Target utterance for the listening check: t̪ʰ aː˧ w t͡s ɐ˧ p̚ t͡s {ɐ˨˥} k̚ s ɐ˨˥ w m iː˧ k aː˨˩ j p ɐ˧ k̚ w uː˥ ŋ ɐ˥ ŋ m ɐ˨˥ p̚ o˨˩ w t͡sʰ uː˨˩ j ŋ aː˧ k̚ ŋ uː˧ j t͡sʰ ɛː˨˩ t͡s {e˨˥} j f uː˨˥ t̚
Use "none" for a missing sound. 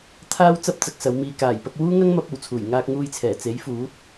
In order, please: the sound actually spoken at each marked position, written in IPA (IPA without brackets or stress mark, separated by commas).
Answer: ɐ˨˥, e˨˥